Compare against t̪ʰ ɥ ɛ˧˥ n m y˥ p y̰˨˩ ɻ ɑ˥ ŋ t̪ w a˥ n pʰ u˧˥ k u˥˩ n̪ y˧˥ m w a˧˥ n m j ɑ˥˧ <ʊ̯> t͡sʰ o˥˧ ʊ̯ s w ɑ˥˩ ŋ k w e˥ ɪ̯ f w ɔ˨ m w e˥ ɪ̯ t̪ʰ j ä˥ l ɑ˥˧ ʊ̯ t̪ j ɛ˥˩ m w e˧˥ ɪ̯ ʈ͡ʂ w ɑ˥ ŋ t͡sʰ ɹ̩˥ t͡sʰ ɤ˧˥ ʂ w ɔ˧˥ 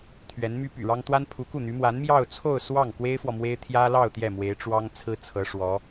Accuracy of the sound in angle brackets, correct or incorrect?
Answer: correct